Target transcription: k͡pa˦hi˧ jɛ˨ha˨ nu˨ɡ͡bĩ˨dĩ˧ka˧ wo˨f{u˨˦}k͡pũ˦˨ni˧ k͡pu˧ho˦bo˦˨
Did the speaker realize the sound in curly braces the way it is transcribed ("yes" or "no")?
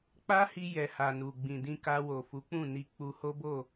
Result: yes